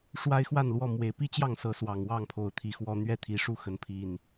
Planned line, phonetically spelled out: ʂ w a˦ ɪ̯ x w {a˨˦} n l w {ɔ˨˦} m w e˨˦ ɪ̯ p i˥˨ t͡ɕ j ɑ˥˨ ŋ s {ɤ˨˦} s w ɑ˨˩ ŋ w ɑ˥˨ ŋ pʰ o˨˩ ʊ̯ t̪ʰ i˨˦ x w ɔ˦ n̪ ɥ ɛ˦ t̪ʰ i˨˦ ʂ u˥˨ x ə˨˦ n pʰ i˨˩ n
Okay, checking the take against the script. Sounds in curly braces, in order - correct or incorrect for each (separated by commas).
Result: incorrect, incorrect, correct